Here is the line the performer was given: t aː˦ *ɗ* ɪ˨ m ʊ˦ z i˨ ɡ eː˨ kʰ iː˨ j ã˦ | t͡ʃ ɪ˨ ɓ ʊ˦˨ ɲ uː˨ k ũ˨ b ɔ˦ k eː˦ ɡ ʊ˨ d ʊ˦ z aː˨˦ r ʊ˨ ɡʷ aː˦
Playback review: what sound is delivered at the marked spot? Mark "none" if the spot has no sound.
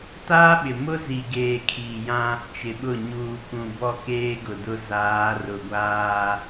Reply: ɓ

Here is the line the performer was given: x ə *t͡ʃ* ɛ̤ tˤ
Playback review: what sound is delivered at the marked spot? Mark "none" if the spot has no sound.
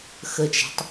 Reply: t͡ʃ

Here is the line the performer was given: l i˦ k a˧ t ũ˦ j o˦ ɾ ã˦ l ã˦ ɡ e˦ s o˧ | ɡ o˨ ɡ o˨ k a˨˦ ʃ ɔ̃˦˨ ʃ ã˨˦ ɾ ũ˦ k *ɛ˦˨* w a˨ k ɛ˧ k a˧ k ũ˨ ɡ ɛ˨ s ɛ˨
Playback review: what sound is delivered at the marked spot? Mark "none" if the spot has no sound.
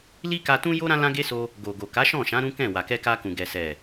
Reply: ɛ̃˦˨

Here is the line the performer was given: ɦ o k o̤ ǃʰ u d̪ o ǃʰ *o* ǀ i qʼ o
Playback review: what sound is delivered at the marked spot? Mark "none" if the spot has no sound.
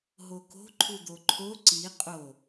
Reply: o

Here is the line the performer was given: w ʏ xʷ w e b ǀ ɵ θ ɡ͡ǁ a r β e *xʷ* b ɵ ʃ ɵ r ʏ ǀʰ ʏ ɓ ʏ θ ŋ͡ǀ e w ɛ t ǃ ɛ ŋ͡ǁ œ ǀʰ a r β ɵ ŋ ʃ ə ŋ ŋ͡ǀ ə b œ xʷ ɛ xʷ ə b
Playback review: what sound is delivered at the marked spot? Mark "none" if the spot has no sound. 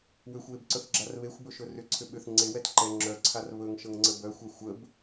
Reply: xʷ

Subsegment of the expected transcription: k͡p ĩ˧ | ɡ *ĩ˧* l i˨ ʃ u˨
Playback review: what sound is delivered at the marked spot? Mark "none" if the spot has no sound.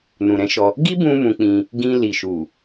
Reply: ĩ˧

